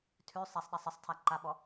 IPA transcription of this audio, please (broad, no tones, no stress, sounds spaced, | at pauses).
tʰ ʉ sˤ a sˤ ɗ a sˤ ə sˤ tʰ a ǃ a ɓ ɔ